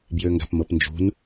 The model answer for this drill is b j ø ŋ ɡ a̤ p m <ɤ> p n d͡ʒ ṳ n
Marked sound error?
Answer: no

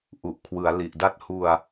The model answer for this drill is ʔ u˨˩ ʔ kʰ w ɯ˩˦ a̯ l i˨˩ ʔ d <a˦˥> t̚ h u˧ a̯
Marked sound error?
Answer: no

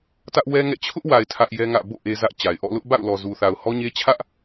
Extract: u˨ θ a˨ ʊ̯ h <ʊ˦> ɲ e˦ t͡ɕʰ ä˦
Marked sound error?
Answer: yes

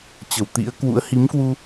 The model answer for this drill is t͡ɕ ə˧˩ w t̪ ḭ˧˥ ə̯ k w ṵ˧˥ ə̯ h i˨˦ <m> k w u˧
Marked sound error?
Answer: no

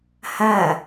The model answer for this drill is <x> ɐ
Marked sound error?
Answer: yes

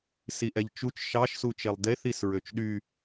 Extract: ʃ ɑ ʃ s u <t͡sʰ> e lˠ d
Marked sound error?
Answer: yes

